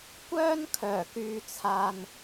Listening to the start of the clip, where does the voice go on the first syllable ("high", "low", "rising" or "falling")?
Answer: high